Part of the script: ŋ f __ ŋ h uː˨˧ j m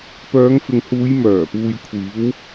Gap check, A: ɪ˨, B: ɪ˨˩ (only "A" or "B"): A